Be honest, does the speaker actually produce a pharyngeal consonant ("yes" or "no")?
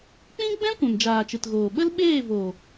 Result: no